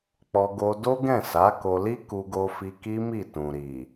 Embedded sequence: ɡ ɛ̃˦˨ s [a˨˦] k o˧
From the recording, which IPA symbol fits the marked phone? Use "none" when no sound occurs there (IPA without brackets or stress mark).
a˨˦